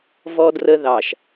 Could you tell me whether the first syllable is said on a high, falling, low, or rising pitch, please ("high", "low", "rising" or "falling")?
low